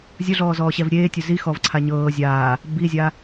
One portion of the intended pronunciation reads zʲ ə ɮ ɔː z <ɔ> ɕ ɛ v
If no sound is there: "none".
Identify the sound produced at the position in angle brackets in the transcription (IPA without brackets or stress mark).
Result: ɔː